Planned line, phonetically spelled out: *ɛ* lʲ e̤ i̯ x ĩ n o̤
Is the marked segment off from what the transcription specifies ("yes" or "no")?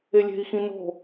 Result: yes